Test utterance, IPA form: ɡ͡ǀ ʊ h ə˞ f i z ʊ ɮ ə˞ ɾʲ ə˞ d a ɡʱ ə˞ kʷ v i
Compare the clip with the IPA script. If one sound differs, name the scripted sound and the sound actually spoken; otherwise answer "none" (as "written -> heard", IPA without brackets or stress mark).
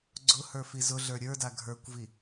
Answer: none